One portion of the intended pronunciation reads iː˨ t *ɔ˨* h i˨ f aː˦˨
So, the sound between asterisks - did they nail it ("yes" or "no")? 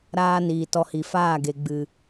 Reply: no